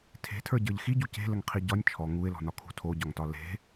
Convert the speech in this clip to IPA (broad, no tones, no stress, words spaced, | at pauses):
tʰe̤tʰə˞ɟə˞ʎ xiɟu ce̤ləŋqʰi ɟɒnʲ t͡ʃʰɔ ŋuɪ̯lɔ̤nɒ kʰṳ tʰoɟɒŋtɒ le̤